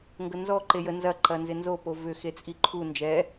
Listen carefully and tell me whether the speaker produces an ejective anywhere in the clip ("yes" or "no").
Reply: yes